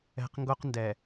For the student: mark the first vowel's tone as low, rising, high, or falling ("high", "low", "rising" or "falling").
low